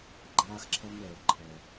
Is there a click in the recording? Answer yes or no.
yes